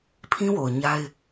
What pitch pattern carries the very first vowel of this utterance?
high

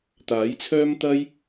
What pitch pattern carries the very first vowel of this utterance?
rising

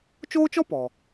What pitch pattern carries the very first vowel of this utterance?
high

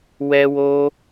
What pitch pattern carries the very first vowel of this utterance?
high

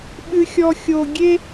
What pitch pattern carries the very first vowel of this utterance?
low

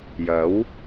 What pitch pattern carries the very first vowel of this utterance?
rising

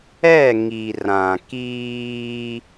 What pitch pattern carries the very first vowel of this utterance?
falling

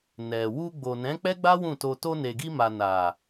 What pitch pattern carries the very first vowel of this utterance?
low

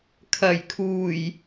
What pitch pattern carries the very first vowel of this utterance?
low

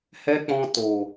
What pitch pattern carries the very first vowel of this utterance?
high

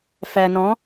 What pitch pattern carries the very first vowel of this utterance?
low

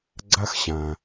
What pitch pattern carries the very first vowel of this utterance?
high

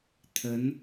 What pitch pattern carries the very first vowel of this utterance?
rising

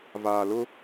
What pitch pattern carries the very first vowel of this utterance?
low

